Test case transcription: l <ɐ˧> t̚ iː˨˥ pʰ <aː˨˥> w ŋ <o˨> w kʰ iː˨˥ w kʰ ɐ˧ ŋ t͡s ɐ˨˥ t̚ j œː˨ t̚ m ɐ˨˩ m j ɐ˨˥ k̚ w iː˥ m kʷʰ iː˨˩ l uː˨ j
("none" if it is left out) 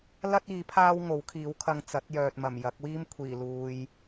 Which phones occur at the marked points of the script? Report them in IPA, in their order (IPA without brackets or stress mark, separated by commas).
ɐ˥, aː˥, o˨˥